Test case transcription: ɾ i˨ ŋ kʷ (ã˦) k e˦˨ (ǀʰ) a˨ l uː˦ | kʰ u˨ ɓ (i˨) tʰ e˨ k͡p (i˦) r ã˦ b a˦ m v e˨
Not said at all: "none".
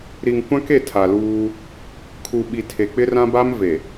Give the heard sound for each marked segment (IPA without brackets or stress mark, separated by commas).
ã˦, tʰ, i˨, ɪ˦